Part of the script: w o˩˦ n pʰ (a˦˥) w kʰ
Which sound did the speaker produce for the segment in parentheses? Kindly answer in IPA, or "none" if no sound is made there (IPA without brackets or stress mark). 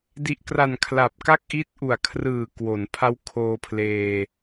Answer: a˦˥